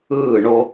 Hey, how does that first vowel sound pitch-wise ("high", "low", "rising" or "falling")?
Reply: falling